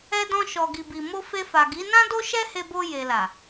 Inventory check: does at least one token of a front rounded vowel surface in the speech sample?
no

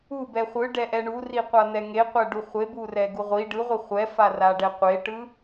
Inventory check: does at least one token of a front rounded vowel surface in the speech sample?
no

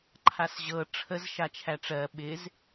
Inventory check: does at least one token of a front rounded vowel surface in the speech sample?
no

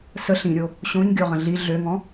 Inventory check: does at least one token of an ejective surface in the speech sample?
no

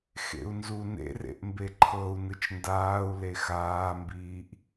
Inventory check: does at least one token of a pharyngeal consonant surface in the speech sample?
no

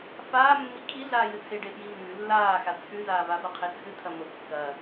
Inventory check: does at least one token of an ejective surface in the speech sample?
no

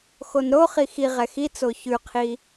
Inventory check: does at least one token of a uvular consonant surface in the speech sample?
yes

